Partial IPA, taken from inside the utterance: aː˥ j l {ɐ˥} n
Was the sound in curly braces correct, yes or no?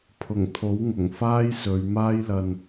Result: no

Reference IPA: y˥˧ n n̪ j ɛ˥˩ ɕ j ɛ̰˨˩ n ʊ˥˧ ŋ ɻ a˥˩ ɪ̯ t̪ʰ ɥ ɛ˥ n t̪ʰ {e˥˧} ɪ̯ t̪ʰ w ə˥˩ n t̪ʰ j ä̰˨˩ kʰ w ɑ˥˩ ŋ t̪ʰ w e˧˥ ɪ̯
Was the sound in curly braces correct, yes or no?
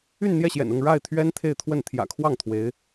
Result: yes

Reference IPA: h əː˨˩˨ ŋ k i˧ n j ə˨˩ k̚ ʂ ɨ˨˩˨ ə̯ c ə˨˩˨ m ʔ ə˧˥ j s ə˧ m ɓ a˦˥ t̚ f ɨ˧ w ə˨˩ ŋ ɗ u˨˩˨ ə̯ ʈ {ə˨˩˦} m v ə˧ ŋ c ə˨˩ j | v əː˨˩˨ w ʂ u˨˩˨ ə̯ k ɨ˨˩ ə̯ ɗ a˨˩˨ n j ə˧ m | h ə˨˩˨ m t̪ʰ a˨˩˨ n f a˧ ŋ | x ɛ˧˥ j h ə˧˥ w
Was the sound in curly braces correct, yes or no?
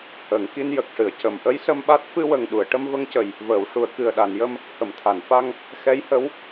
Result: no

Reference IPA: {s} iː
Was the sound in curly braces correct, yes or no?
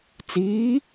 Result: no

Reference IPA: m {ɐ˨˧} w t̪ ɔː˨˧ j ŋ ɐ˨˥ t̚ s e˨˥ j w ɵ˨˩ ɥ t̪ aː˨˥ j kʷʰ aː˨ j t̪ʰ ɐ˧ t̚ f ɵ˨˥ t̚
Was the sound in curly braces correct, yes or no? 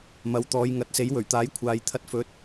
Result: yes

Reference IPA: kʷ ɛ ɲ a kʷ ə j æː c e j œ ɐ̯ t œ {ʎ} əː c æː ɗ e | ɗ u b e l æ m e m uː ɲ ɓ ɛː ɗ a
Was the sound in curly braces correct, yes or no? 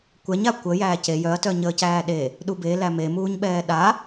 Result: no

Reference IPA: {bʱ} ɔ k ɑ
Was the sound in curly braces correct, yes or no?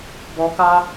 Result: no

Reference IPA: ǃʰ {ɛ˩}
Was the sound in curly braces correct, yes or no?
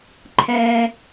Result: yes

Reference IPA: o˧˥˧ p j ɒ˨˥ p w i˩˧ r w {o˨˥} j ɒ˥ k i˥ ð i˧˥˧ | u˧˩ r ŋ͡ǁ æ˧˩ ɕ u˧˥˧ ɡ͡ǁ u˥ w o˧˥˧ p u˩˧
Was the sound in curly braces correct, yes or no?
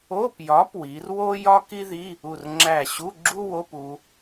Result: no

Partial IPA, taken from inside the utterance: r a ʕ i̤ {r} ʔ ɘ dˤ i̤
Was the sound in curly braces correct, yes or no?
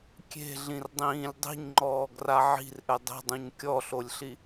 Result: yes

